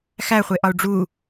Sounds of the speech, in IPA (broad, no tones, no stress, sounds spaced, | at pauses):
x æ χʷ e ʔ ɒ u̯ ɖ͡ʐ u